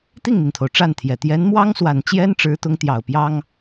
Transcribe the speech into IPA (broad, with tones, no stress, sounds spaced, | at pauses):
t̪ i˥˩ ŋ n̪ i˩ n t̪ʰ o˩ ʊ̯ ʈ͡ʂ a˥˩ n t̪ʰ j ɛ˨˩ t̪ j ɛ˧˥ n m w ɑ˥ ŋ s w a˨˩ n t͡ɕ j ɛ˥ n ʈ͡ʂ ɻ̩˧˥ t̪ ʊ˧˥ ŋ t̪ j ɑ˨˩ ʊ̯ p j ɑ˥ ŋ